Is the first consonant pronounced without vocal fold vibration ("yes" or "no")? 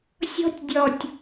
yes